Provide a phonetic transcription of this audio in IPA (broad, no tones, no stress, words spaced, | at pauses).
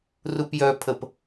rupjœpʰəp